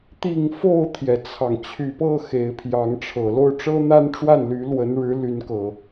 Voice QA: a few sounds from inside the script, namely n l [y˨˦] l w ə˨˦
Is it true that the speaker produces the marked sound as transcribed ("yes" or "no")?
yes